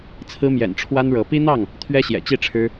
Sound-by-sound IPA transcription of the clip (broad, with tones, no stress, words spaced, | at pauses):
t͡sʰɹ̩˦mjɛ̰˨˩n ʈ͡ʂʰwa˦nɻɤ˨˦ pi˦n̪ɑ˥˨ŋ | t̪ʰɥɛ˦ɕjɛ̰˨˩t͡ɕi˥˨ʈ͡ʂʰɻ̩˦